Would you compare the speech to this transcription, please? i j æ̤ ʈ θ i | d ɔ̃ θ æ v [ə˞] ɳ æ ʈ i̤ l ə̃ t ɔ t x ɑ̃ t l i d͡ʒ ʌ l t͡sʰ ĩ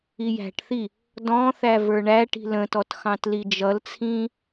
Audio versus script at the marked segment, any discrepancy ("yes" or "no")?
no